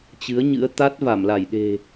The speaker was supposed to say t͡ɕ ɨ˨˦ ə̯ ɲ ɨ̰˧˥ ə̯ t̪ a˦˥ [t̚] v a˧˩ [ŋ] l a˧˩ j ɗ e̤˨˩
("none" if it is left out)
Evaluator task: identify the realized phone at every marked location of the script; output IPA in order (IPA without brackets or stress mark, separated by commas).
t̚, m